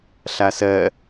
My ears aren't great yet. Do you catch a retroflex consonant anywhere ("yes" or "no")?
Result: no